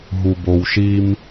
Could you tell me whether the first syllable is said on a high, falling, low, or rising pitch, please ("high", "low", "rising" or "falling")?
low